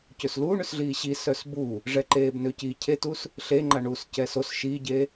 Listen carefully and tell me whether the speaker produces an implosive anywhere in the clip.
no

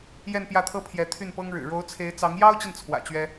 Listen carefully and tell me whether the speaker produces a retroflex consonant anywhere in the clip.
yes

